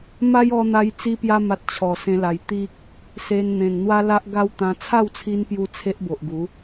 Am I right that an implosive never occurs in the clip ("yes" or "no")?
yes